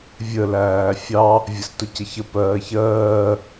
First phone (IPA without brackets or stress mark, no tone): vʲ